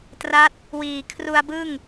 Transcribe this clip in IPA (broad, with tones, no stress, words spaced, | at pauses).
tra˦˥t̚ | wiː˨˩ kʰru˧a̯bɯ˥˩ŋ